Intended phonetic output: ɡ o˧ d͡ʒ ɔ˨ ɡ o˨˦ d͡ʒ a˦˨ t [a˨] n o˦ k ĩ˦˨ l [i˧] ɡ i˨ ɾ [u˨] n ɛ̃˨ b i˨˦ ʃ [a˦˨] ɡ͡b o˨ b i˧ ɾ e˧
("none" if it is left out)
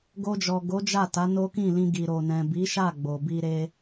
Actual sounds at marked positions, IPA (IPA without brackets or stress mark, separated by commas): a˨˦, ĩ˧, o˨, a˦˨